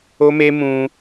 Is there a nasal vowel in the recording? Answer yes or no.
yes